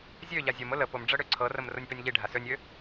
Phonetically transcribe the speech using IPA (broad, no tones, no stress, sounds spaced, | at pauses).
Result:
zʲ ø ʎ a zʲ ɤ m ʊ l ə p ʊ m ɖ͡ʐ ɤ ɽ ø ǀʰ ɤ r ə m r ʊ nʲ p ø nʲ ʎ i ɖʱ a s ø nʲ ø